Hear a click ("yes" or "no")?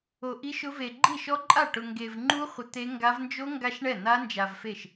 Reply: yes